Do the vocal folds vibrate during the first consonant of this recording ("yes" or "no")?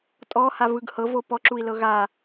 no